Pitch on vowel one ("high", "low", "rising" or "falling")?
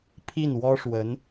falling